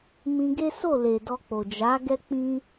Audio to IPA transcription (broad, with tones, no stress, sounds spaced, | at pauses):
m ĩ˧ ɡ e˦ s o˦˨ l e˨ d ɔ˧ k͡p o˨ d͡ʒ a˨˦ ɡ ɛ˦ k͡p ĩ˦